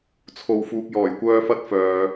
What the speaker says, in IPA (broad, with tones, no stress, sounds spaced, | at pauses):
t͡sʰ o˧ w f uː˨ k̚ j ɔː˨˩ j kʷ œː˧ f ɐ˧ t̚ f œː˨